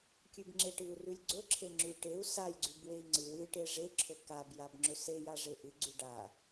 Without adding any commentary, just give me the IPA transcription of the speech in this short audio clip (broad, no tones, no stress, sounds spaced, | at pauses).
kʲ ʉ b ŋ͡ǁ e ʈ ɨ u̯ r ʉ lʲ ɡ͡ǀ ɵ ǁʰ e ŋ͡ǁ ʉ ʈ e u̯ s a j ɡ͡ǀ ʉ b w e i̯ ŋ͡ǀ ɨ w ɨ ʈ e ʐ e ǁʰ ɵ k a b j a b ŋ͡ǁ ɵ s e j a ʐ e ʔ ɨ ɡ͡ǀ ʉ ɖ a